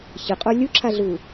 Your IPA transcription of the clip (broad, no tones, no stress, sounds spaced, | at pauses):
ç ə qʼ o lʲ u ǁʰ a ɮ uː